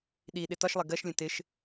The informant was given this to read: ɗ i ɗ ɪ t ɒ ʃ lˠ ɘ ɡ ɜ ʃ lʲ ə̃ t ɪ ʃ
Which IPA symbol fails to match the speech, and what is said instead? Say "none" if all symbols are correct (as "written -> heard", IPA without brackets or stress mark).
ɘ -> ɛ